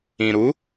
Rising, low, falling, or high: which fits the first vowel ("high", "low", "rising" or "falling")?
low